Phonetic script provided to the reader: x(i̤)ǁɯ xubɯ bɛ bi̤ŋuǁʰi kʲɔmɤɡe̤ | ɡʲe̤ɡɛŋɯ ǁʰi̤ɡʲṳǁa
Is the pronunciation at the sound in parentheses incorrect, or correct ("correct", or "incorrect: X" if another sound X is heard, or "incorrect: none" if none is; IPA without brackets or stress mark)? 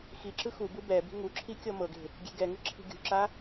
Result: incorrect: i